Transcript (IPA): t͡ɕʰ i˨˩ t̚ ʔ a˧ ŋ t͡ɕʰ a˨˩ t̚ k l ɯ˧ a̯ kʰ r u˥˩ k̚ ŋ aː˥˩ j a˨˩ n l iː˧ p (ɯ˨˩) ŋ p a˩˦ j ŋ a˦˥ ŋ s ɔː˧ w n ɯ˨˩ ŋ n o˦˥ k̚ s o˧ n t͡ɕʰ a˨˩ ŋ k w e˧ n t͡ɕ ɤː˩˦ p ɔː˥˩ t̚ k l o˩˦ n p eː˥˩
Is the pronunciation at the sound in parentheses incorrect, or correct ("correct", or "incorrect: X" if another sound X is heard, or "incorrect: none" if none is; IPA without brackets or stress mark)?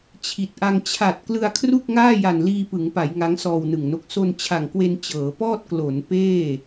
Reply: incorrect: ɯ˩˦